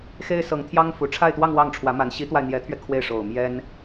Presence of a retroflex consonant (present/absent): present